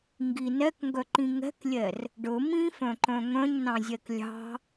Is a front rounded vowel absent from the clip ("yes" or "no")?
no